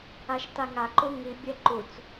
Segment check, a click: present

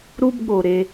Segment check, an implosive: present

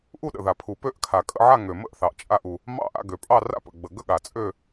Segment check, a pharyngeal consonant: present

